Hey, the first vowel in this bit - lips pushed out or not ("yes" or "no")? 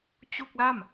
yes